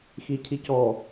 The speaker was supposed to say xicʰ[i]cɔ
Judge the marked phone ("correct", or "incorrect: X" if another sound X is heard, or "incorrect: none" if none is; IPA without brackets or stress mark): correct